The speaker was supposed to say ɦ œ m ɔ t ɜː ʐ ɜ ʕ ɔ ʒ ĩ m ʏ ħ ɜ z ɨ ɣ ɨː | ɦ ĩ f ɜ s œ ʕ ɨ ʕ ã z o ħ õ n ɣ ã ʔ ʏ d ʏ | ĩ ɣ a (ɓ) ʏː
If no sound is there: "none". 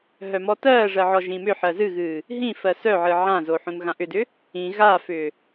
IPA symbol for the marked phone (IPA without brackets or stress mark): f